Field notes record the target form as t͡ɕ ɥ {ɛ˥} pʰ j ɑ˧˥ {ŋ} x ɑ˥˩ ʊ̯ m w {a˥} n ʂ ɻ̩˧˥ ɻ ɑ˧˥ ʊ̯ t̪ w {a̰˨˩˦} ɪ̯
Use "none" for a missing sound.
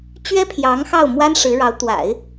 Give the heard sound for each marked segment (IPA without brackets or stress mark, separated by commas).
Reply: ɛ˥, ŋ, a˥, a̰˨˩˦